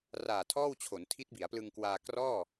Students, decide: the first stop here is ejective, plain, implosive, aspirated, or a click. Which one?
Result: aspirated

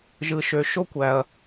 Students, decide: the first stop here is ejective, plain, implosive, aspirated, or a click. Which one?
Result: plain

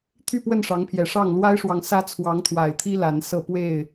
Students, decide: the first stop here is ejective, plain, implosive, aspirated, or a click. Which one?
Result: aspirated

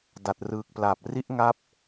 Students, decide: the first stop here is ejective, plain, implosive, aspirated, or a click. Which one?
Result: plain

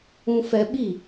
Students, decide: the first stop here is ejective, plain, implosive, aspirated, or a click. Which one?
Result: implosive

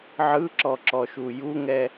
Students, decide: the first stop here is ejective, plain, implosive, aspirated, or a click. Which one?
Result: click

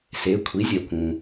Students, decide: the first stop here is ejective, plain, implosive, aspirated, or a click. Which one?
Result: aspirated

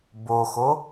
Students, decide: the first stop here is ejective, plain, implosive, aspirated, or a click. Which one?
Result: plain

